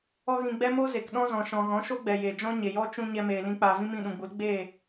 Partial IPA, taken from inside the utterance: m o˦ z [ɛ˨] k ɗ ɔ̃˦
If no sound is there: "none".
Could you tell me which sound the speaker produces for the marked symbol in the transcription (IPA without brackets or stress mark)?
e˨